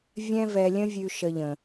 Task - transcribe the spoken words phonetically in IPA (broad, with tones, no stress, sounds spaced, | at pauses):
vʲ ɛ̃˥ v ɛ˧ lʲ ə̃˥ vʲ ʉ˧ ʃ ə˧ ʎ ə̃˩